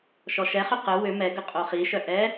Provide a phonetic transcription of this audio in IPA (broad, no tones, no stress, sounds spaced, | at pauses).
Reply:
ʃ ɔ ʃ ɛ χ ʏ q ə w ʏ m ɛ ɡ ə qʼ o χ i ʃ œ ʔ ɛ